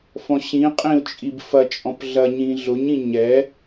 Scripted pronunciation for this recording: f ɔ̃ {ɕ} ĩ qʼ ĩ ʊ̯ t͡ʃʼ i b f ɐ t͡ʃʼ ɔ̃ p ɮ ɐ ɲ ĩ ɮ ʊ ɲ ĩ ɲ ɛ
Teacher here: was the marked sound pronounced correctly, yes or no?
yes